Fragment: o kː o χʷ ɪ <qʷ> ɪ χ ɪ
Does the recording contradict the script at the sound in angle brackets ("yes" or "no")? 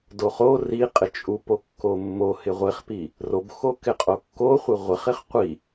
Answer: yes